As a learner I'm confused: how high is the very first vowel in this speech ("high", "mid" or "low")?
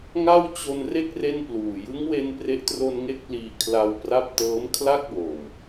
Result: low